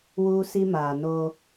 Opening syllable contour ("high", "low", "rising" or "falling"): high